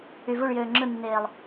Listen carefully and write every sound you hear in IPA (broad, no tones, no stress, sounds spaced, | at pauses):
y v u ɭ j øː ŋ͡ǁ ɯ nː eː lˠ